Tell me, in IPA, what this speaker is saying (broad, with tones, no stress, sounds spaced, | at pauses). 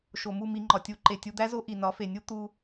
ʃ o˨ m u˦˨ m i˧ ŋ͡ǃ ɒ˨ tʲ u˧ ǃ e˨ tʲ u˧ d̪ æ˦ z o˦ ʔ i˨ n ɒ˨˦ f e˨ nʲ u˦ t̪ u˧